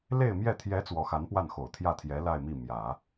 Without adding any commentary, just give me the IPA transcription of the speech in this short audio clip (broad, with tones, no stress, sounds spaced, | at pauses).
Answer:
l e˥˧ ɪ̯ m j ɛ˥˩ t̪ʰ j ɛ˧˥ t͡s w ɔ˧˥ x a˧˥ n p w a˥˩ n x o˨˩ ʊ̯ t̪ʰ j ä˥˩ t̪ʰ j ɛ˧˥ l a˥˧ ɪ̯ m i˥˩ m j ä˨˩˦